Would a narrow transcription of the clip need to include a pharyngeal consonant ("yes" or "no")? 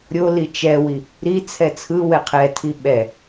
no